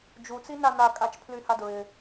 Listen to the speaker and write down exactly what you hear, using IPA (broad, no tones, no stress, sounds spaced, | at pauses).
d͡ʒ u t͡s i n a n a kʼ a t͡ʃ pʰ l y h a d ɹ ɪ